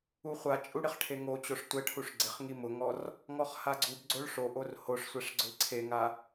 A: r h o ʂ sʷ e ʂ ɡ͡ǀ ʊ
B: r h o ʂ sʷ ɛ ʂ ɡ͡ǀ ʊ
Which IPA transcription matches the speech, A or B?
B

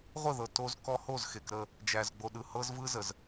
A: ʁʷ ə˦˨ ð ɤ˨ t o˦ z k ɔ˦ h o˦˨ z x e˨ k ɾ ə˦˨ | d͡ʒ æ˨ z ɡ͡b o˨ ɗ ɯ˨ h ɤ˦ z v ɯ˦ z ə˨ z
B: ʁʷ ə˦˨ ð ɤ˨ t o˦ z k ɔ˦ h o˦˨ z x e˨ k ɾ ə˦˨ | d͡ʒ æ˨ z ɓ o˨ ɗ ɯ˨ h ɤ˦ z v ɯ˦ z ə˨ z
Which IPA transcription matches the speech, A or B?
A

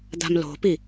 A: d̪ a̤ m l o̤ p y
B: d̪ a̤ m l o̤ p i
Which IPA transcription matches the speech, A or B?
B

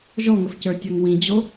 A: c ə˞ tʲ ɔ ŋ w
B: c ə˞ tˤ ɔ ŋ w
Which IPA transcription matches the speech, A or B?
A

